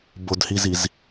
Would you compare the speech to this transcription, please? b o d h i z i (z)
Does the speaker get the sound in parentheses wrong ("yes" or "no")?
no